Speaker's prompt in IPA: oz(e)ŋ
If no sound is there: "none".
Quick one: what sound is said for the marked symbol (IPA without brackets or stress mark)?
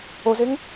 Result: e